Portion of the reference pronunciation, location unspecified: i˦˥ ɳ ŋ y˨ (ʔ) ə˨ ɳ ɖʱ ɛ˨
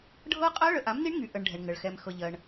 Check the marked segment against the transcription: correct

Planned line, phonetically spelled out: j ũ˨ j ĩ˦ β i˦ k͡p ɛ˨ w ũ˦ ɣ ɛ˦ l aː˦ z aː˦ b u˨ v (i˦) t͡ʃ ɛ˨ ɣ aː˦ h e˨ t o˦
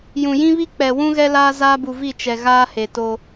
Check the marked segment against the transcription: incorrect: i˦˨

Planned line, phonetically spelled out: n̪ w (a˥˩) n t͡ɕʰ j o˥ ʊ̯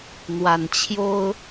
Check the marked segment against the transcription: incorrect: a˨˩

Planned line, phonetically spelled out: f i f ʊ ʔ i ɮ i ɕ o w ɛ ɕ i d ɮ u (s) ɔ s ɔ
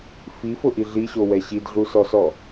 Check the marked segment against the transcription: correct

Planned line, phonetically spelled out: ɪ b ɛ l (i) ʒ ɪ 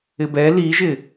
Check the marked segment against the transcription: correct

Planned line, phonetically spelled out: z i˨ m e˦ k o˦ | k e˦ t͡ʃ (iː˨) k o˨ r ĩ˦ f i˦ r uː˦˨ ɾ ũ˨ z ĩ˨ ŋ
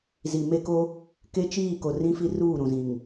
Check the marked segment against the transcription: incorrect: iː˦˨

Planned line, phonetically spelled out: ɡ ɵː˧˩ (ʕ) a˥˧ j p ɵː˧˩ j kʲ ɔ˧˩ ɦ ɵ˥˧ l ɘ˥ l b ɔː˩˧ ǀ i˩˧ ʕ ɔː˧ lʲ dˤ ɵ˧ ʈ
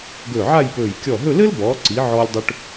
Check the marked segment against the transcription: correct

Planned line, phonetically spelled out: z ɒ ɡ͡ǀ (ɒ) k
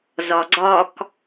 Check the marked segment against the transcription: correct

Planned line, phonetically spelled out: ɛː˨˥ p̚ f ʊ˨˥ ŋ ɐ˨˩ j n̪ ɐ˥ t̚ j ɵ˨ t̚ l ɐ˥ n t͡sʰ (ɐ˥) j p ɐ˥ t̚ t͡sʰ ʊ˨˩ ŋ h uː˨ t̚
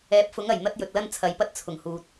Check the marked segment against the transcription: incorrect: ɐ˨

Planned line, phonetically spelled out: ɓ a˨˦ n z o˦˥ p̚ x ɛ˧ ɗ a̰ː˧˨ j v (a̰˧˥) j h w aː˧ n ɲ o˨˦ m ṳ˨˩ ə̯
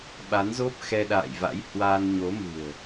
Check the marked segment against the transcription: correct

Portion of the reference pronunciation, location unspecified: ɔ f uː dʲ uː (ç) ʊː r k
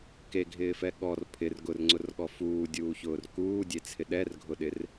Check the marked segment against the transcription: correct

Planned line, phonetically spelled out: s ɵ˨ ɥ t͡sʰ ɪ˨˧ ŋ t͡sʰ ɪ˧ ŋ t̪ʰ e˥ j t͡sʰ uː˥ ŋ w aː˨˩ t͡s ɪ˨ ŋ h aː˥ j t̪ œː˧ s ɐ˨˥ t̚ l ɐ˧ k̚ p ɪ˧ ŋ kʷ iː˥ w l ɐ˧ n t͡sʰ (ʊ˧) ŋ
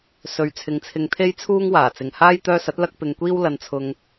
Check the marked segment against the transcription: correct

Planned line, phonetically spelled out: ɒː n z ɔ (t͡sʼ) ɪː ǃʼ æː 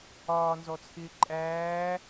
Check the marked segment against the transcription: incorrect: t͡sʰ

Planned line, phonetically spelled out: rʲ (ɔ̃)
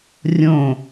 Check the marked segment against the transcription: incorrect: õ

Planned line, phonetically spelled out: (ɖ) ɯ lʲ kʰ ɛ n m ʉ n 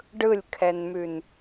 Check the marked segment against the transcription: correct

